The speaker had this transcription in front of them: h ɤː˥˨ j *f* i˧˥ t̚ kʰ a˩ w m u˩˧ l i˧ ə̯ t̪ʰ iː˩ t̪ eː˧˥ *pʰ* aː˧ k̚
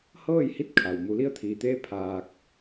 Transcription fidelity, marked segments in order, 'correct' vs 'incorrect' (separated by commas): incorrect, correct